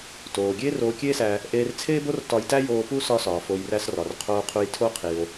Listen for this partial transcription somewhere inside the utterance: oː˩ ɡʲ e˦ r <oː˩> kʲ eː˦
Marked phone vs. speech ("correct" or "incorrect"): incorrect